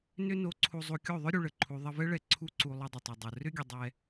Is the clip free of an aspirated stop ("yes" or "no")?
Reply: no